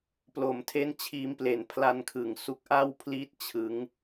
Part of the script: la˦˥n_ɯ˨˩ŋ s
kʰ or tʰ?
kʰ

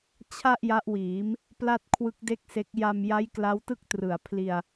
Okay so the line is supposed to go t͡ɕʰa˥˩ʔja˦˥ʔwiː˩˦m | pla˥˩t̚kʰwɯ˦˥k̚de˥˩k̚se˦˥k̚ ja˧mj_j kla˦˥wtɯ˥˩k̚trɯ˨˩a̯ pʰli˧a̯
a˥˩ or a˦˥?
a˦˥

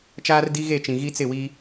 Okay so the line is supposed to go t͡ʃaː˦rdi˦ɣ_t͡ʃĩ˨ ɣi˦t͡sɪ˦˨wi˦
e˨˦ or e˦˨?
e˦˨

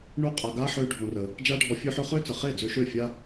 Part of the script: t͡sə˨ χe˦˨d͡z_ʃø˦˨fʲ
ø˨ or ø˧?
ø˧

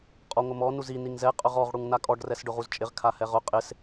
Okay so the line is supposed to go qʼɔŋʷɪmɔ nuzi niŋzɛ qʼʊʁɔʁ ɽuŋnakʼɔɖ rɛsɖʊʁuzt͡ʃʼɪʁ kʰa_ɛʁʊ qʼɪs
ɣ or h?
h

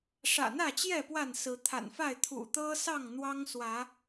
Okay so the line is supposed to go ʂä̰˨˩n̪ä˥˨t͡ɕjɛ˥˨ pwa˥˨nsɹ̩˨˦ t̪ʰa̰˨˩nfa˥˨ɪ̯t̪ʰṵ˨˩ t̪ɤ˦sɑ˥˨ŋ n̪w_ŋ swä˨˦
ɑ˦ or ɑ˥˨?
ɑ˦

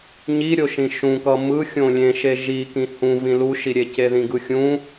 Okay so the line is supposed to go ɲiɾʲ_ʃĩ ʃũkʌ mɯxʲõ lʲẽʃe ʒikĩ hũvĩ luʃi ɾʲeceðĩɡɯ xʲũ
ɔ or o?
o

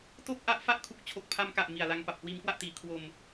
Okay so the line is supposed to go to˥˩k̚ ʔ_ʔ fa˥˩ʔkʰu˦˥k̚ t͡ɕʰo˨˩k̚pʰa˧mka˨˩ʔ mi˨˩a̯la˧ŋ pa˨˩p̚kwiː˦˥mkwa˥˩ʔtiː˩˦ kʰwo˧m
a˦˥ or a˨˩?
a˦˥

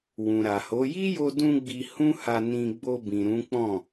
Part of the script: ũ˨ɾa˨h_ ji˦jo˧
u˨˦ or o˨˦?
o˨˦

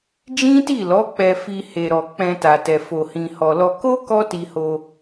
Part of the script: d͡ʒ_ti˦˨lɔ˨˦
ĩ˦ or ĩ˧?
ĩ˦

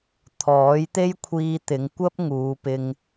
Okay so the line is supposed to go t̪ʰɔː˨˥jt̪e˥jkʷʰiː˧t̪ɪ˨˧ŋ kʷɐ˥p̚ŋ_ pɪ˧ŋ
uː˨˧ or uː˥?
uː˨˧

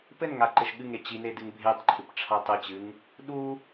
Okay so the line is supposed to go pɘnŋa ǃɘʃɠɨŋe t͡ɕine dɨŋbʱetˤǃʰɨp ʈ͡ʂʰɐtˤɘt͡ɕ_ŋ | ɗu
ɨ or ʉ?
ɨ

